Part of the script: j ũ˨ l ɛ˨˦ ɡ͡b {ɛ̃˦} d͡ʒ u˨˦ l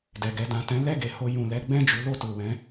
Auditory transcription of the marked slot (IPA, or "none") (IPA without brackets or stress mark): ɛ̃˦˨